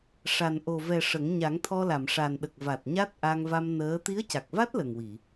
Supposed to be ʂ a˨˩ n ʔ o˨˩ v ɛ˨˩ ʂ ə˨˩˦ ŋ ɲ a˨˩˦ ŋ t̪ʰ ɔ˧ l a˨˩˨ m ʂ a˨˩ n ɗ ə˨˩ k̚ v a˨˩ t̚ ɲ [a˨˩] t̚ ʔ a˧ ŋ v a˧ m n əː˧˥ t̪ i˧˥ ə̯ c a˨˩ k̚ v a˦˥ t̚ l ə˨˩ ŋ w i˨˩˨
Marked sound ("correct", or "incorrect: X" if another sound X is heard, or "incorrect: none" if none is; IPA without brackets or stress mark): incorrect: a˦˥